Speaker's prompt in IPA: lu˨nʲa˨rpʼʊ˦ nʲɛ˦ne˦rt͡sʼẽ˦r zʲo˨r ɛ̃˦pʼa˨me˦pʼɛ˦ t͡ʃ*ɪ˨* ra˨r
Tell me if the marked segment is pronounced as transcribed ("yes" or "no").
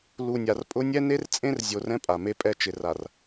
yes